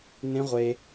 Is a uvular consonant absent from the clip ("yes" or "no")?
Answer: no